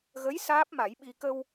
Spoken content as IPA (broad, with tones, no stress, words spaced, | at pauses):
ɣə˧˥j saː˦˥p̚ma˨˩˦jɓi˧ kə˧w